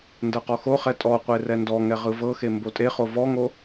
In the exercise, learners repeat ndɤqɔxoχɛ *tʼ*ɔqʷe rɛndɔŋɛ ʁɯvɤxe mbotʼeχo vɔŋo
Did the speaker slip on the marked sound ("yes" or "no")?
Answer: no